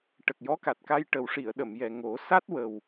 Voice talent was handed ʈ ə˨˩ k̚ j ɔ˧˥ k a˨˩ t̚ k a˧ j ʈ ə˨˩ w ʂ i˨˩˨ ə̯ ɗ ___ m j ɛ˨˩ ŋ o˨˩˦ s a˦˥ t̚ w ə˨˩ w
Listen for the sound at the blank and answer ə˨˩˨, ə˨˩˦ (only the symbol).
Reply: ə˨˩˨